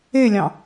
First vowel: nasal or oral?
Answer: oral